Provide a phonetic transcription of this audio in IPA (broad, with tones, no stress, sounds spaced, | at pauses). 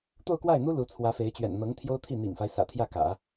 t̪ o˥˧ ʊ̯ k w a˥˩ ɪ̯ n̪ u˥ l u˧˥ t͡sʰ w ä˧˥ f e˧˥ ɪ̯ t͡ɕ ɥ ɛ̰˨˩ n n̪ ɤ˧˥ ŋ t̪ʰ j o˥ ʊ̯ t̪ʰ i˥˩ n̪ ḭ˨˩ ŋ f a˦ ɪ̯ s ä̰˨˩ t̪ʰ j ä˥˩ k ä̰˨˩˦